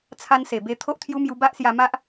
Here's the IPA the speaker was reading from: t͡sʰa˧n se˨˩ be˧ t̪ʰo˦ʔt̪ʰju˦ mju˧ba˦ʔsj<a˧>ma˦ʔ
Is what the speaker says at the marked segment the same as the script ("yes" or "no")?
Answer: yes